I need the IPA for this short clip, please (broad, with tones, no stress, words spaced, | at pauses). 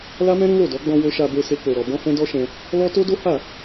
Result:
la˦mɛ̃˦ ɾũ˦lo˦˨dɔ˨˦ ɡ͡bɔ̃˧wo˧ʃa˧be˧ se˦k͡po˧ɾɔ˧ bɔ̃˦hɛ̃˦dɔ˦ʃɛ̃˧ | lɔ˦ to˦do˦ ha˦˨